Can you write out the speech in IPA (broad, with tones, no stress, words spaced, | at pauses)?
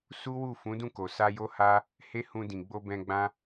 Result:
su˦wu˦˨ fũ˨˦dũ˦˨ko˨ sa˧jo˦ha˦ | he˦hũ˧dĩ˨ɡ͡bo˧ bɛ̃˧ɡ͡bã˦